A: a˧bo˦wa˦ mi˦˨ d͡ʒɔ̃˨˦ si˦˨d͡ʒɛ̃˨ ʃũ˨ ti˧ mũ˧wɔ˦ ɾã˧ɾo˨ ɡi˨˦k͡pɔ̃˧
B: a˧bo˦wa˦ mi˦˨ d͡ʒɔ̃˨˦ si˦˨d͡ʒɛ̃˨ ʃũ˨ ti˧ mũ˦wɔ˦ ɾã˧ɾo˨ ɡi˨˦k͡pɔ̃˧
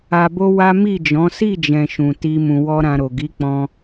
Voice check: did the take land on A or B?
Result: A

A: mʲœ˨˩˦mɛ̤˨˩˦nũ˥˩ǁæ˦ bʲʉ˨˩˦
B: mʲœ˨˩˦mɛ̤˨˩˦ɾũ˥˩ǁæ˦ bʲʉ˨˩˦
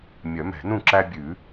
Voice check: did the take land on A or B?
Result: A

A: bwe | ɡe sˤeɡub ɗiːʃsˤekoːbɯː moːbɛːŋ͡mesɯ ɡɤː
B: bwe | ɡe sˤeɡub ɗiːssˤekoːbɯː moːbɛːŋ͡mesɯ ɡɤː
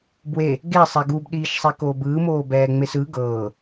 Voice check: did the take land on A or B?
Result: A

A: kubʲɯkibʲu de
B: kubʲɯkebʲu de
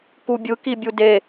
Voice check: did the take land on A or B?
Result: A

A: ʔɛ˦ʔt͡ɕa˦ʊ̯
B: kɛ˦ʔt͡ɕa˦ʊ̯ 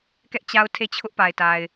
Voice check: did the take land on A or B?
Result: B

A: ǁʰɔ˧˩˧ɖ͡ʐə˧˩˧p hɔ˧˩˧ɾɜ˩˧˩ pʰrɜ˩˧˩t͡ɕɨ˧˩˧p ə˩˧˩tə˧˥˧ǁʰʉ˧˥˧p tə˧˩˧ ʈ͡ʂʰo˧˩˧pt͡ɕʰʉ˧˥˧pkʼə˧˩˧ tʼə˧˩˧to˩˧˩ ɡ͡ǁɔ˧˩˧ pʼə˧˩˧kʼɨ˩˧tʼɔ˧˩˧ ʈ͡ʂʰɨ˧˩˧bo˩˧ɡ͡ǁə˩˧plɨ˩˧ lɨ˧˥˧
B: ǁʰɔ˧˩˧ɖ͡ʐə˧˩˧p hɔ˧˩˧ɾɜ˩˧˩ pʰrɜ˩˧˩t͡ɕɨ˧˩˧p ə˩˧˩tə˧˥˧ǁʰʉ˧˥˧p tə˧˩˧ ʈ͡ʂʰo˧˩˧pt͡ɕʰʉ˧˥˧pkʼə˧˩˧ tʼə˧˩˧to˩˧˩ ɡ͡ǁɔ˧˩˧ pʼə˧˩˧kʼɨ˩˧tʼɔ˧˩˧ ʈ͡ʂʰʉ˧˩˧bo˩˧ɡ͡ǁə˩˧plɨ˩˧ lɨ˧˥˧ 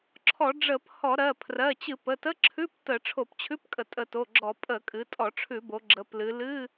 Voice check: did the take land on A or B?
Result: B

